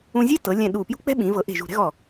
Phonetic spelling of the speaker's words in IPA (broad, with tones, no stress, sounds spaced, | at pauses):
ũ˧ zʲ e˥ t ɤ˩˧ lʲ ɛ̃˧˩ ɗ u˧˩ p j ṳ˥ k͡p ɛ̤˥ ɓ ĩ˩˧ v ɤ˩˧ ʔ e̤˧˩ ʒ ṳ˧˩ ɾ ɛ̤˥ ɣ ɔ˧˩